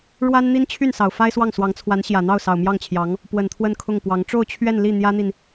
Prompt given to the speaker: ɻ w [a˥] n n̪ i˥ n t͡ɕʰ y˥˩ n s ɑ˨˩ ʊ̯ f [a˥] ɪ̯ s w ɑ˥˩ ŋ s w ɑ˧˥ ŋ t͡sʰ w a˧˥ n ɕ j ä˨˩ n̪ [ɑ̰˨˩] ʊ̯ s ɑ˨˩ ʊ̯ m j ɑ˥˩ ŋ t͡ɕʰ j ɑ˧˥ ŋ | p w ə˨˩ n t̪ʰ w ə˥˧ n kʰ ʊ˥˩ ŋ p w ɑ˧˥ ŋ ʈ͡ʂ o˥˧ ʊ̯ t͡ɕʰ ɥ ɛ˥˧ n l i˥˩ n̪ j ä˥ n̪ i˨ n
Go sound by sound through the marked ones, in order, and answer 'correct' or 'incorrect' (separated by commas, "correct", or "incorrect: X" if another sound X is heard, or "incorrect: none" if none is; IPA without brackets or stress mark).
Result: correct, correct, incorrect: ɑ˥˩